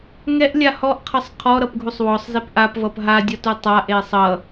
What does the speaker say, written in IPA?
ŋ ɛ ʔ lʲ a h ɔ ʔ qʰ ʌ sˤ qʰ ɔ ɾ ʌ p ɡʱ u sˤ w ɔ sˤ z e p ʔ a p v ʌ p ɦ a dʲ ʌ t u tˤ a ʔ e sˤ ʌ

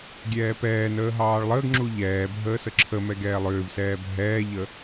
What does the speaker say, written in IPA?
ɡʲ ɛː p ɛː n əː ɦ ɑː ɭ lˠ əː ɡ ŋ͡ǁ u ʎ ɛː bʱ əː s ə ǁʰ ə m ɛ ɡ ɛː lˠ ʏː v s ɛː bʱ ɛː ʎ ə

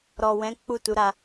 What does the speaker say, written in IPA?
ɾ ɔ˨ w ɛ̃˨˦ k͡p u˦˨ t u˨˦ ɾ a˧

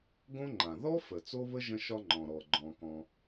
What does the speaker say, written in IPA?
ɡ õ˥ ŋ͡ǃ ã˩ ð ɔ˥ f ə˩ t͡s o˥ β ə˥ ʒ ə̃˥ ʃ ɒ˥ ŋ͡ǃ ɔ̃˩ ɾ ɔ˩ ɡ͡ǃ ɔ̃˩ k ɔ̃˩

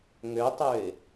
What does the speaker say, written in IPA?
ŋ ø tˤ ø ɪ̯

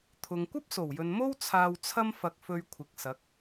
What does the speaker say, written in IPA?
t̪ʰ ʊ˨ ŋ kʷ ɐ˥ p̚ s o˨˩ w j ɵ˨ n m o˥ w t͡sʰ aː˧ w t͡sʰ ɐ˥ m f ɐ˧ k̚ f ɵ˧ ɥ kʷʰ ɪ˨ k̚ s ɐ˨˥ k̚

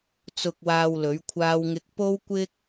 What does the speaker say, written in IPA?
t͡s ʊ˧ k̚ w aː˧ w l ɵ˨˥ ɥ kʷʰ aː˥ w ŋ ɪ˥ k̚ p o˥ w kʷ ɪ˥ k̚

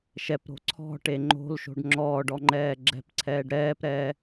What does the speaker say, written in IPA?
ʃ ɛ p ɾ o̤ ǀʰ ɔ̤ ʈ e ŋ͡ǃ o̤ l ʃ o̤ ɖ ŋ͡ǁ ɔː ɖ ɔ ŋ͡ǃ ɛː ɡ͡ǁ ɛ̤ p ǀʰ ɛː ɖ ɾ ɛː p ɾ ɛː

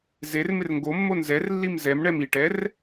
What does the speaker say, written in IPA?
z e r m ɪ r ŋ ɡ o mː o n z ɛ r lː i m z ɛ m ɳ ɛ m i ʈ ɛ r

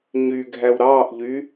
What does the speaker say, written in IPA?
ɲ y ɡʱ æ w ɾ ɑː ʔ ʎ y

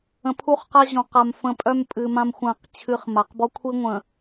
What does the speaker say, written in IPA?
ə̃˨ pʰ u˦ χ q a˦ ʑ ɔ̃˨ q a˨ m f ə̃˨˦ pʼ œ˦ m pʼ ɨ˨ m ã˦ m xʷ ã˦˨ q t͡ɕʰ ɨ˦ χ m a˨ q b ɔ˦ kʷʰ i˦ ŋʷ ə̃˨

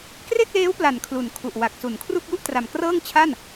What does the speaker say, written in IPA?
k r e˥˩ k̚ l eː˦˥ w p l a˨˩ n kʰ l u˨˩ n kʰ u˨˩ ʔ w a˨˩ k̚ s u˩˦ n kʰ r u˥˩ k̚ j u˥˩ ʔ t r a˨˩ m k r ɤː˥˩ ŋ t͡ɕʰ a˥˩ n

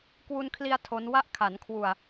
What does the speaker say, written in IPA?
k w u˧ n kʰ l i˧ a̯ tʰ o˦˥ n w a˦˥ ʔ kʰ a˩˦ n kʰ w u˨˩ a̯

